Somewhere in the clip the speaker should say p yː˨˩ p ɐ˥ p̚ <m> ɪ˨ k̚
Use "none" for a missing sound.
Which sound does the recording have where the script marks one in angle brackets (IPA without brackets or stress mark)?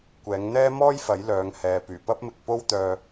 m